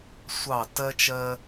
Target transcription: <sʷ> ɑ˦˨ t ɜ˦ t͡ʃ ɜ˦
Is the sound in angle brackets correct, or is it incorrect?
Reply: correct